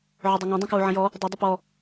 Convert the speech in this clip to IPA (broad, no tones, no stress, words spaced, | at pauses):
ʕɵdˤɵŋæ̃ dˤũkwuʕə̃jɔ | dˤʌ dˤəpɔ